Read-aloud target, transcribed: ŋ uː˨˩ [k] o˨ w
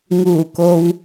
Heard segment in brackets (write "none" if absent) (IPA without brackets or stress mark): k